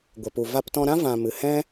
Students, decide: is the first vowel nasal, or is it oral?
oral